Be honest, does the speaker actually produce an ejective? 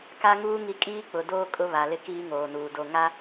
yes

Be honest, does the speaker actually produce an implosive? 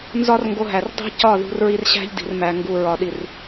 yes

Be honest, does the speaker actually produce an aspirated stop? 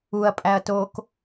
no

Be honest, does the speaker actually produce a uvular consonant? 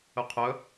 yes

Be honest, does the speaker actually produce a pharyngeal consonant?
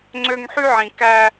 yes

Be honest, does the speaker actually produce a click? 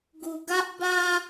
no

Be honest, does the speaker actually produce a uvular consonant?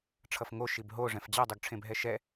no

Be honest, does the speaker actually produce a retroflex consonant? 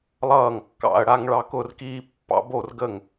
yes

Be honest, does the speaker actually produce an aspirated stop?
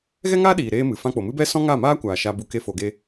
no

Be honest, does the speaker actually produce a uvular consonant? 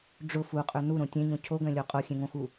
yes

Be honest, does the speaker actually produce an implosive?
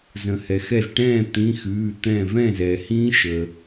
no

